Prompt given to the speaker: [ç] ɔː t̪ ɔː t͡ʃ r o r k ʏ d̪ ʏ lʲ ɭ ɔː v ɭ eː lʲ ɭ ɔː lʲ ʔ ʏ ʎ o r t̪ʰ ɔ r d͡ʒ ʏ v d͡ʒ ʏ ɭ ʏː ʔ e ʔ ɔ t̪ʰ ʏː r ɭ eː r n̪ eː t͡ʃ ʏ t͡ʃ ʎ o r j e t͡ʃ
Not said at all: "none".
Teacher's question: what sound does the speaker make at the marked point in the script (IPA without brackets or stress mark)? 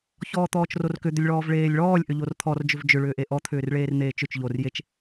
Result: ç